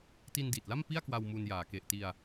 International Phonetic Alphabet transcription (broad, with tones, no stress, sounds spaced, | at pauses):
t i˧ n d iː˨˩ t̚ l a˥˩ m p i˥˩ a̯ k w a˧ w m u˧ n j aː˩˦ k e˨˩ ʔ t i˧ a̯